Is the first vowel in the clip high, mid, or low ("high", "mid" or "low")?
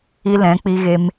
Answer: high